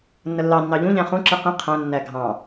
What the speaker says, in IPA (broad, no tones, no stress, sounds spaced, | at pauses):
nː ə lː ɑ nː ɑ ʎ ũ ʎ æ̃ χ ũ ǁ i q ĩ qʰ æ̃ nː æ ɡʱ ɑ̃